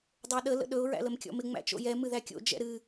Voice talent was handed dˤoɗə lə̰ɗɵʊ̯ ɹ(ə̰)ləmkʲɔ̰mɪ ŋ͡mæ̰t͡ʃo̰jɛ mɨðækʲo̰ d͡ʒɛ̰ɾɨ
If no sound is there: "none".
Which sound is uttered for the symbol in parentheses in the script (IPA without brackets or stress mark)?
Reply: æ̰